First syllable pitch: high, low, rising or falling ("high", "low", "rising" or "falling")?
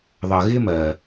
low